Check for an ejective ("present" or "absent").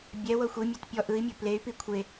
absent